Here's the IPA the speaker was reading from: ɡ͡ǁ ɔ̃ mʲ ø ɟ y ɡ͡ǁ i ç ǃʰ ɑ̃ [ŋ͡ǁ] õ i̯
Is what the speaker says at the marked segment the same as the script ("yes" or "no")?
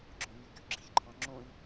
yes